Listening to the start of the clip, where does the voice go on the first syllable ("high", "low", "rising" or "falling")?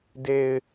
low